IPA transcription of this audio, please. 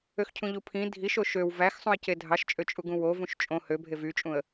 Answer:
øxcʰũʎupʰĩ dʱiʃ oʃøw væxsˤũə̯ce dʱɑʃt͡ʃʼø t͡ʃʼuɡũwo vũʃt͡ʃʼõ hø bʱevyt͡ʃʼũə̯

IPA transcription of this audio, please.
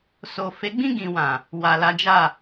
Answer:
so˨ fe˨˦ɡ͡bĩ˦˨ɡĩ˨ wã˨ | wa˨la˨˦d͡ʒa˦˨

